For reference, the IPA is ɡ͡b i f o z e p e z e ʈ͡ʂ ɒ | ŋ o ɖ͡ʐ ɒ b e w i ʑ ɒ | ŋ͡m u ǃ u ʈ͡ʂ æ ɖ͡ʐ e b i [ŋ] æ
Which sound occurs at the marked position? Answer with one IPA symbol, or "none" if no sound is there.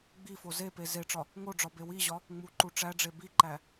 ǃ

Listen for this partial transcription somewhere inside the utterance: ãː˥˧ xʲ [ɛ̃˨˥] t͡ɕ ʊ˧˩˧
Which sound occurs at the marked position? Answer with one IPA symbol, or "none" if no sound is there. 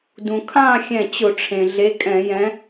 ɛ̃˧˩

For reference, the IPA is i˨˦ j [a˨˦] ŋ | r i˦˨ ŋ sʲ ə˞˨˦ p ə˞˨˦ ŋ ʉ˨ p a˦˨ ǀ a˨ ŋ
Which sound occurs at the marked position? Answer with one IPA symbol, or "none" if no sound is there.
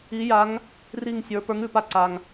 a˨˦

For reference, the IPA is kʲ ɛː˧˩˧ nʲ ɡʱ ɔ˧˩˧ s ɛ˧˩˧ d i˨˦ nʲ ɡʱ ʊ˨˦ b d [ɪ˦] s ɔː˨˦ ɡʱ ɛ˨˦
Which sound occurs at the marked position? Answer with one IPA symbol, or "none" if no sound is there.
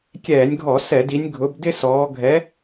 ɪ˦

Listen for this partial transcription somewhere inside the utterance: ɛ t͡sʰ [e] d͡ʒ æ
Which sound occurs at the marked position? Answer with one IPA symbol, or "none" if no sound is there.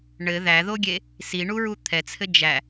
ɘ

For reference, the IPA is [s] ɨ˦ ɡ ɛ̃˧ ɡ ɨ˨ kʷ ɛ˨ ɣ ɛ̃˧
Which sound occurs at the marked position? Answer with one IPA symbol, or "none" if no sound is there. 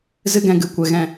z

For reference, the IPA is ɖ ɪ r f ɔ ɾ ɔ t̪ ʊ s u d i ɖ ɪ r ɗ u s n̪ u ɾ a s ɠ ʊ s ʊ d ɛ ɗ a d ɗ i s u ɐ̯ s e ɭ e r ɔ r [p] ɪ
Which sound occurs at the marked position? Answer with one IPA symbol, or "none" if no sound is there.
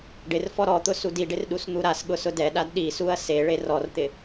t̪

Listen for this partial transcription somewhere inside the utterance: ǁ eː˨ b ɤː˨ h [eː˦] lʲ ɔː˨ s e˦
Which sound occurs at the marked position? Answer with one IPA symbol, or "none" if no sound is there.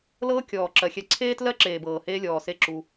eː˦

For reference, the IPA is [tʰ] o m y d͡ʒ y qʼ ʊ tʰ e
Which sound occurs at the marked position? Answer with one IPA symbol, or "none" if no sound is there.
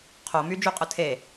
qʰ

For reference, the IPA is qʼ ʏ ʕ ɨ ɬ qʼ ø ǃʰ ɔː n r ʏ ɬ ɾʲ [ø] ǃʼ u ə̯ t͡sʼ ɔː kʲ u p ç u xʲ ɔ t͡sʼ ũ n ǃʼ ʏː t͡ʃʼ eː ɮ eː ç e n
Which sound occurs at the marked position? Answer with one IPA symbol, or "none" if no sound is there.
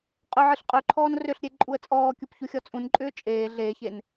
e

